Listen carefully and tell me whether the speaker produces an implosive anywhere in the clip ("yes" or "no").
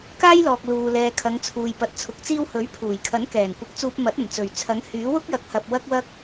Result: no